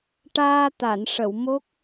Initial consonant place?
retroflex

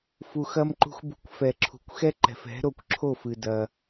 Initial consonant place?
labial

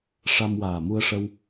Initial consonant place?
retroflex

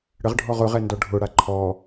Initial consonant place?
retroflex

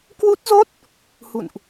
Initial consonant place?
velar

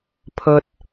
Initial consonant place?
labial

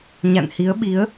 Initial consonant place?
palatal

